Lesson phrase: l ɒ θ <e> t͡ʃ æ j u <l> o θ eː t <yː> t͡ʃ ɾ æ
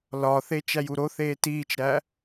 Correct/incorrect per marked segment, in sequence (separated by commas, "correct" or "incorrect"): correct, incorrect, incorrect